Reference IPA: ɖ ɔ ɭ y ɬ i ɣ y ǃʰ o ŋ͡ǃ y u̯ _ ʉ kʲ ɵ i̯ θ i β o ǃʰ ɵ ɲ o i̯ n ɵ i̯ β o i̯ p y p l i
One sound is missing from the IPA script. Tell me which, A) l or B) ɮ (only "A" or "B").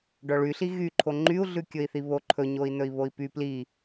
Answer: B